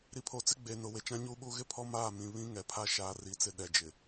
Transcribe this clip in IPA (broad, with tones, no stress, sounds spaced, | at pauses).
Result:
ɾ i˨ pʰ o˨ t͡s ɪ˦ ɡ͡b eː˨ n ʊ˨ w e˨ t͡ʃ ã˦ ɲ uː˦ ɓ uː˦ ɣ ɪ˦ pʰ ɔ˦ m aː˦˨ m ĩ˨ β ĩ˦ ŋ ɛ˨ pʰ a˦ ʃ aː˦ r i˦ t͡s ɪ˦ ɗ ɛ˨ d͡ʒ ɪ˨